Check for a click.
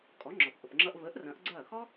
present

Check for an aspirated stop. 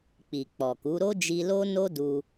absent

